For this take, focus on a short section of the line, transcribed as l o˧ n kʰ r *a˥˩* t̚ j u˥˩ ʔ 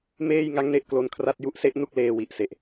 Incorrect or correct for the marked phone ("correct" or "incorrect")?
correct